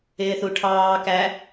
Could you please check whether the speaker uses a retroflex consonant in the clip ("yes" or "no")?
yes